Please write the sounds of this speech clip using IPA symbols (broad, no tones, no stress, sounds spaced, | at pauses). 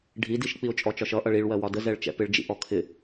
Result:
ɖʱ i d i ʃ k͡p i ʊ̯ t͡ʃʼ ɔ t͡ʃ ɒ ʃ ʌ ʔ ʌ ɭ i ɭ w ɜ w ɒ d ə z ɛ ɭ t͡ʃ ɛ̰ p ɪ ɭ d͡ʒ ḭ ʔ ɔ kʰ ɪ